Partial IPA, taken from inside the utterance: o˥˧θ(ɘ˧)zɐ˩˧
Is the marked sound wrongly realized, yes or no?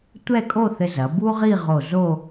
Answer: no